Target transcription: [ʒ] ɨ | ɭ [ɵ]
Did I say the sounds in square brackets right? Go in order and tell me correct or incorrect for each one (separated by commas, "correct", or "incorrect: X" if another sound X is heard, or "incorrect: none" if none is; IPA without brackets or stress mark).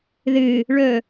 incorrect: ð, correct